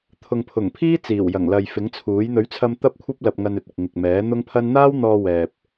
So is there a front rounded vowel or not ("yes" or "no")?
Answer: no